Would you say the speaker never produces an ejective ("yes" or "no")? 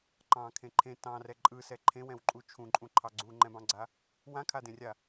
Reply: no